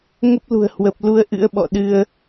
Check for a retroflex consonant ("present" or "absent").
absent